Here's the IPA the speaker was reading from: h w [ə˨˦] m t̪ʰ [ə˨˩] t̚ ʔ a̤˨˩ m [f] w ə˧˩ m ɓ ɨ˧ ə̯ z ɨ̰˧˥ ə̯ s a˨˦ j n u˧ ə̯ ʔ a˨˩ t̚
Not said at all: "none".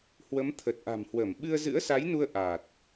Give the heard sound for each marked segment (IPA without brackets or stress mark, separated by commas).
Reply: ə˨˦, ə˨˩, h